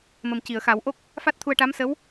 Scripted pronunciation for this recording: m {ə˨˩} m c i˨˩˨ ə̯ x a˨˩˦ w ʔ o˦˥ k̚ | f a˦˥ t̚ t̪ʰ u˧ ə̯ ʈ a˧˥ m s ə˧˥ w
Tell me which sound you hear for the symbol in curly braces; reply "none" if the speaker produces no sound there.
ə˨˩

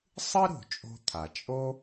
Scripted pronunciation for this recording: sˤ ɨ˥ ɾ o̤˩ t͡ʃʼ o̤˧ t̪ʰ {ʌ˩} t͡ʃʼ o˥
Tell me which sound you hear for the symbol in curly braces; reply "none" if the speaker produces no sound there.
a˩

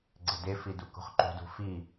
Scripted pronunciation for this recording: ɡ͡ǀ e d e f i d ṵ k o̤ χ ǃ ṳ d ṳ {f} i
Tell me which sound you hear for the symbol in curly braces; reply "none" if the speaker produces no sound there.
f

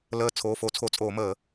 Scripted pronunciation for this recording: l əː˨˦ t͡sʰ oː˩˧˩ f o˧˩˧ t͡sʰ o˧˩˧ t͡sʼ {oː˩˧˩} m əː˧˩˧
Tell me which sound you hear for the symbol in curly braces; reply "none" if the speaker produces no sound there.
oː˧˩˧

